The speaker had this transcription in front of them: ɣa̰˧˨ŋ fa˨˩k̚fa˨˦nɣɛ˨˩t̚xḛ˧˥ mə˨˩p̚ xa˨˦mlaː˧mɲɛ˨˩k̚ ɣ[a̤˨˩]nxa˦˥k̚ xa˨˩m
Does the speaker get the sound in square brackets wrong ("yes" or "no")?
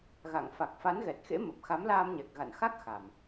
yes